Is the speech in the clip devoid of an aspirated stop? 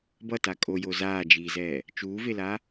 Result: yes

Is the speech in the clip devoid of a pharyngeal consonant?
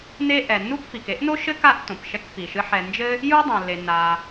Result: no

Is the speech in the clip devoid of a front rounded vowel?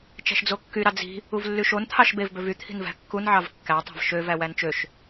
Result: no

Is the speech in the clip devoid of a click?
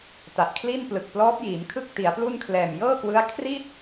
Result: yes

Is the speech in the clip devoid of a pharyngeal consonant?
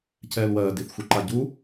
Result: yes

